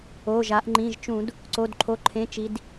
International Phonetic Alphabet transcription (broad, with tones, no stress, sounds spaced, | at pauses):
o˩˧˩ ʒ a˩˧ ʔ ŋ͡ǃ ĩ˩˧˩ ʒ t͡ʃ ũ˧˩˧ d | ǀ o˩˧˩ d ǃʰ o˩˧˩ ǃʰ ẽ˩˧˩ t͡ʃ i˩˧ d